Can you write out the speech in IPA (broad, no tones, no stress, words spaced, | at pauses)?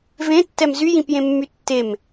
vẽtːɛm zyjĩpjẽmːy tːem